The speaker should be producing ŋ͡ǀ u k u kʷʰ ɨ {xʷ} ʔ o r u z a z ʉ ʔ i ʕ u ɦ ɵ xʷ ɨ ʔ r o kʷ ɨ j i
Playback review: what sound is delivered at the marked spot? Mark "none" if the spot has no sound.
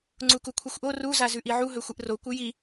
xʷ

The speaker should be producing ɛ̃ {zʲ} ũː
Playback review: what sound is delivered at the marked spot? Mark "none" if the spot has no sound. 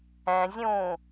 zʲ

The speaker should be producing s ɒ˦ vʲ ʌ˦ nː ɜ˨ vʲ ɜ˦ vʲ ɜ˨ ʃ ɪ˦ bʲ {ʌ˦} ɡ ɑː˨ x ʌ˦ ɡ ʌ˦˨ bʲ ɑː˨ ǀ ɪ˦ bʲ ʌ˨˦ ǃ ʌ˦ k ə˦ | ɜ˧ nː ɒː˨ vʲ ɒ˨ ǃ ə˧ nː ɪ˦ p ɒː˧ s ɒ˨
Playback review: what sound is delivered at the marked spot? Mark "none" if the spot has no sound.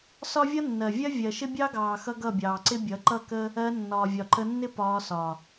ɑ˦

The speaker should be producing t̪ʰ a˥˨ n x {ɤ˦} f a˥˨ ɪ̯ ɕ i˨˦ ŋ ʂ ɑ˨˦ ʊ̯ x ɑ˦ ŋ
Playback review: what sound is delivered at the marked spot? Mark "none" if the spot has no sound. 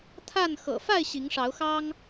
ɤ̰˨˩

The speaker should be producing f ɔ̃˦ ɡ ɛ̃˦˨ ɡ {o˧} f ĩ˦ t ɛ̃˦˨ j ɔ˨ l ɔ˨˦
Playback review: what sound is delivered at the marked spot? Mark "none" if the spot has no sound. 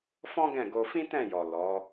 o˧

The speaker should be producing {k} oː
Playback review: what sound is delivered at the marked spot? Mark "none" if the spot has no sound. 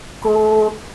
k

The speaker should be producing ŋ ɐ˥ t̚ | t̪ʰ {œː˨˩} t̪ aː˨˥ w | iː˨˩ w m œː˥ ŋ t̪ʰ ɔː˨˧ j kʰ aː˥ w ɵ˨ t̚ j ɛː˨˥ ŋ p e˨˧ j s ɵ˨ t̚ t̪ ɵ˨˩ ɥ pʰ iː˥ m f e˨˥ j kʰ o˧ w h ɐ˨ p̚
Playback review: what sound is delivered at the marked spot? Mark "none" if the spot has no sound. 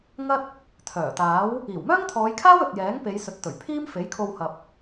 œː˨˩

